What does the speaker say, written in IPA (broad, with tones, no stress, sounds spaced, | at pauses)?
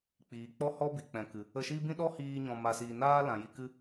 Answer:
k͡p iː˨ k͡p ɔ˦ h ɔ˦ b i˨ k͡p ɛ̃˨ k ɨ˨ | ə˧ ʃ i˦ b ĩ˦ ɗ ɔ˦ h iː˧ ɲ ɔ̃˧ m a˧ s iː˧ n aː˦ l ã˨ j i˧ k ɨ˦